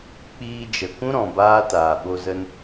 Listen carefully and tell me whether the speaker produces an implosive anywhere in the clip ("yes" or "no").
yes